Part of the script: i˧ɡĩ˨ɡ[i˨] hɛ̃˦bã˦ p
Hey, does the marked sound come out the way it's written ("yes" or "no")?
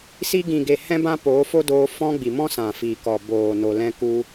no